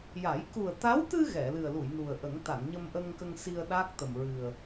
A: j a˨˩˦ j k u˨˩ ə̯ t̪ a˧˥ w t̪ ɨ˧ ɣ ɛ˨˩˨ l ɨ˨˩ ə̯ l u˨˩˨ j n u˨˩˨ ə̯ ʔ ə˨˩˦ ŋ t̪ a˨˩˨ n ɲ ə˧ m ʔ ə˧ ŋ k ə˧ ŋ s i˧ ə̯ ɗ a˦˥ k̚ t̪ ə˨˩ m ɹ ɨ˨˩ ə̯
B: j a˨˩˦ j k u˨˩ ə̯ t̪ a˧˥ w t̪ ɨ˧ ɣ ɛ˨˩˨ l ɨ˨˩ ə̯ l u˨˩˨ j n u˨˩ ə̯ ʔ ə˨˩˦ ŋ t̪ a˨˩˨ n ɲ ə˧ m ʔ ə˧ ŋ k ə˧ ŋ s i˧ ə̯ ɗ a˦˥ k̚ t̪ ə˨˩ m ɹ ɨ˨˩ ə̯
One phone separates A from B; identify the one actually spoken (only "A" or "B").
B